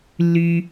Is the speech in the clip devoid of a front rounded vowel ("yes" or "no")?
no